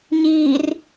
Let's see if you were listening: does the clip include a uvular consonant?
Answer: no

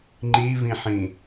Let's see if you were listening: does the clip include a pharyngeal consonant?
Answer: yes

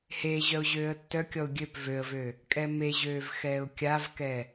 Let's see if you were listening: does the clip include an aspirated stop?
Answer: no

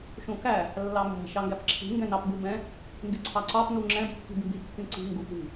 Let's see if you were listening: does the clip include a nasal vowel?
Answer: yes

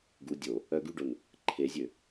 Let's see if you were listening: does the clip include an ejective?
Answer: no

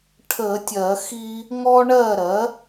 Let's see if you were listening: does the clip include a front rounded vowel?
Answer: no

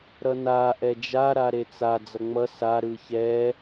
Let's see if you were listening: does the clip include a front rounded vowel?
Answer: no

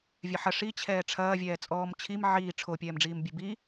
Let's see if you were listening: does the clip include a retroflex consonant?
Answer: yes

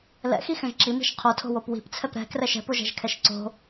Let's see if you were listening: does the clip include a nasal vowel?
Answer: yes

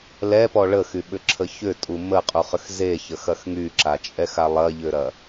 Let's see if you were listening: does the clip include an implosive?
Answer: yes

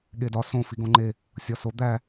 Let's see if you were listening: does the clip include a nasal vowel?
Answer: yes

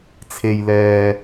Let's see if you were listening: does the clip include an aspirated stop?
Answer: yes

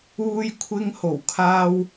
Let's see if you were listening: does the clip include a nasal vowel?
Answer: no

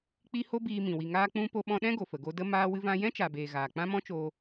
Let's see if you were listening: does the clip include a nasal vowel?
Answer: yes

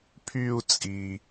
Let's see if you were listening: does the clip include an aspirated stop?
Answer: yes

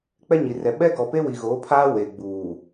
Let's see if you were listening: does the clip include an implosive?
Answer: yes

